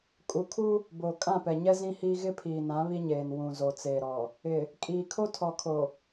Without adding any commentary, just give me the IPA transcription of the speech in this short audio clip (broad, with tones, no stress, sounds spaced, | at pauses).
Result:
kʼ u˨ kʰ u˦ | b oː˨ kʼ ã˦˨ p ɛ˨ ɲ ɛ˦ z ĩ˦ h iː˦ ɣ ɪ˦ pʰ iː˨ n ã˨˦ β i˦ ɲ eː˨ n w ũ˨ z o˨ t͡s eː˨ ɾ ɔ˨ | ɪ˨ | kʼ iː˨ kʰ o˦ tʰ ɔ˨ kʰ o˨